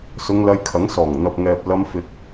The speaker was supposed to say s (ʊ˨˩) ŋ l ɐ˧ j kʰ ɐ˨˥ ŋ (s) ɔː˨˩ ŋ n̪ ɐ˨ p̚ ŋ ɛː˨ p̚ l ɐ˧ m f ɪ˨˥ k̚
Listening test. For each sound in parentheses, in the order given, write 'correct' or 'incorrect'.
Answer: incorrect: ʊ˧, correct

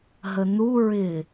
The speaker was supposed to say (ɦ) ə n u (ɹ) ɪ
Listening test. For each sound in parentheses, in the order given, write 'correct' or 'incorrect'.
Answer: correct, correct

